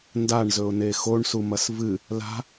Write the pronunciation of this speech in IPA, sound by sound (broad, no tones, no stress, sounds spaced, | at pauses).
n d a ɳ z ɵ ʊ̯ n e x o ɳ s u m ɐ s v ɨ | l a̤